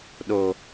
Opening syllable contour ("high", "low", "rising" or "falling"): low